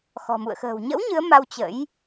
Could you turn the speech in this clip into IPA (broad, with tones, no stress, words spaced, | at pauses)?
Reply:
xɔ̤˨˩mṵ˧˨ə̯ xə̤ː˨˩w ɲə̰˧˥w ɲɨ˨˦ə̯ma˧w t͡ɕə̰˧˥j